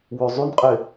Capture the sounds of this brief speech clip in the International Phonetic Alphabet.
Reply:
wøzˤynqʼe

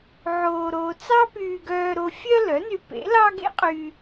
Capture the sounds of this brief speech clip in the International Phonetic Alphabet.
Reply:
ʕoː˧ɾoː˧ t͡sɑ˥pyː˧ɡœː˧ɾo˧ fʲœ˥ lœ˩˥ny˧pḛ˩˥ lɑ˥ɡḛ˥qʼy˧

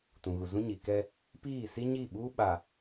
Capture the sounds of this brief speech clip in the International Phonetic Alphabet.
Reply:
tũ˨ɣu˨zũ˦ ɲi˨kɛ˦ | piː˦˨si˦ ɲi˦˨ ɓuː˦ɓa˨

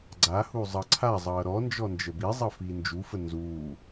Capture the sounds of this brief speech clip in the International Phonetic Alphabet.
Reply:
ɡ͡ǀahu zˤʌǀʰazˤʌː ɾɔ nd͡ʒɔnd͡ʒəbizˤʌ fiːnd͡ʒufə nzuː

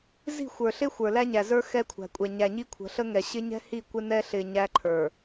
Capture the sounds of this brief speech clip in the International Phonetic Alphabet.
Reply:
zi̤˦˨xʷə˞˨ɬɪ˦ xʷə˞˨læ˦ɲæ˨zə˞˦ xɛ˦kʷʰæ̤˨kʷʼɛ˨ ɲæ˨ɲi˦kʷʰə̤˨˦ ɬə˦ŋɛ˨ ɕɪ˦ɲɛ̤˦hi˦˨ kʷɪ˦nɛ˦ɬɪ˨ ɲæ˦ǃʰə˞˨

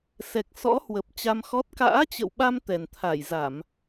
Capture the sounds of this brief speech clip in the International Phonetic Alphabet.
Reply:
sɛ˨˩k̚sɔ̰˧˥hwə˨˩p̚ t͡ɕa˧mxɔ˦˥t̚ ka̰ː˧˥t͡ɕə̰˧˨wɓa˧m t̪ɛ˨˩nt̪ʰa˧˩jza˧˩˨m

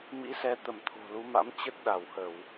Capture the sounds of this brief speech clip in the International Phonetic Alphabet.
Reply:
mḭ˧˥sɛ˨˦ t̪ə˧˩mt̪ʰo̤˨˩lu˨˦ma̰˧˥m t͡ɕə˦˥t̚ɗa˧˩whə˧˩˨w

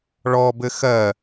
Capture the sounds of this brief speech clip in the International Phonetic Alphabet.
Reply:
ɭɔbɘ xɜ

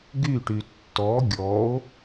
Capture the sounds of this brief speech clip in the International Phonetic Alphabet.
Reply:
ɡyʈy tːɔ ɡʲɔo̯

